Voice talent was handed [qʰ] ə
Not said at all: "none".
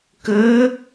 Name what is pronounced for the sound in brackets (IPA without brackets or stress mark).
k